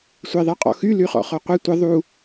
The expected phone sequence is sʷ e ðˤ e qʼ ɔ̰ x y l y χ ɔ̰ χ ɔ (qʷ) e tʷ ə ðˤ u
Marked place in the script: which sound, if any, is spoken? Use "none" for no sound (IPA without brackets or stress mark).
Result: qʷ